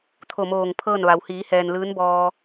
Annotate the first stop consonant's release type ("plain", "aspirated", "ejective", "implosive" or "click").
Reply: aspirated